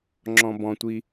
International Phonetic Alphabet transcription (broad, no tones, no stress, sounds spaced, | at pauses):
ŋ͡ǁ ɔ̃ b ɔ̃ tʷ i